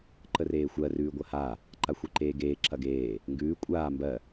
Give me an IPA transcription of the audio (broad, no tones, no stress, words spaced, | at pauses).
ǃəreːxʷɜ rʉːɡʷɐha | ǃaxʷeǃeːɡeː ǁɐɡeː | ŋɡʉː kʷʼaː mbɜ